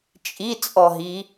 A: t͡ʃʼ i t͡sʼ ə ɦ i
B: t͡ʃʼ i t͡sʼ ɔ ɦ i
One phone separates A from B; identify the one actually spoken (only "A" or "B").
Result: B